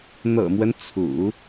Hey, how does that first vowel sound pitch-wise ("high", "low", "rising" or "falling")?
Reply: low